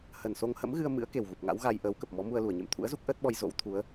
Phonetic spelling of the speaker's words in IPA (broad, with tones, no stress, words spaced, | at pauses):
hə˨˩nso˧ŋhə̰˧˥mɣɨ˧ə̯ mɨ̰˧˥ə̯ ke˨˩wɣu˨˩p̚ŋa̰˧˥wɣa˧j ʔəː˨˦wkə˨˩p̚mɔ˨˦mu˧ə̯ lu˧˩ə̯ɲḛ˧˨mt̪ʰṵ˧˥ə̯zu˦˥k̚ ʔəː˦˥t̚ɓɔ˧j zo̰˧˥w t̪ʰu˨˦ə̯